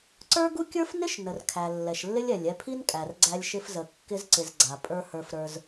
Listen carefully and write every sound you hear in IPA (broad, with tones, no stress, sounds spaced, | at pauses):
ǀ ə˞˦ ɡ u˦ kʲ ə˞˦ f n ɪ˦ ʃ n ə˨ r kʰ æ˨ lː ɛ˨ ʃ lː ɪ˦ lʲ ɛ˨ lʲ ɛ˧ pʰ i˦ n kʼ æ˨ r ɡ͡ǀ æ˧ lʲ ʃ ɪ˧ f z ə˨ kː ɪ˧ z ǀ ɪ˨ z ɡ͡ǀ a˨ pʼ ə˞˧ h ə˞˧ f ɾ ə˞˧ z